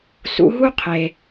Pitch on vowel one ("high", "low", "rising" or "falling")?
rising